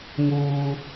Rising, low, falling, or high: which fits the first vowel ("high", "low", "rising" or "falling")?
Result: high